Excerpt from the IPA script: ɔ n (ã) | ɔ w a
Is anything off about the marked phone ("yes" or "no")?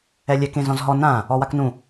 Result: no